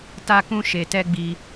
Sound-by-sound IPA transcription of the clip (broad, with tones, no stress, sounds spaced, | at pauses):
t a˦ k ũ˦ ʃ e˧ t ɛ˦ ɡ͡b i˧